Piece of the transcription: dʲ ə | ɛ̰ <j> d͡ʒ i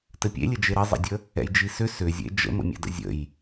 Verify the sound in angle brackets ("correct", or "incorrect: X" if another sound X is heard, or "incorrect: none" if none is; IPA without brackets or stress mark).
correct